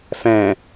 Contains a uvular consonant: no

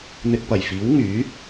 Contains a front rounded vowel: yes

